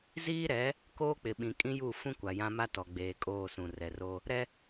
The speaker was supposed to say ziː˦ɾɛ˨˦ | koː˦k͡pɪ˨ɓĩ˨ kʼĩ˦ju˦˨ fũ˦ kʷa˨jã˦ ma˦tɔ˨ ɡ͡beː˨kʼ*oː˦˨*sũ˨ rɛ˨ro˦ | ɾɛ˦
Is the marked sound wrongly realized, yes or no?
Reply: no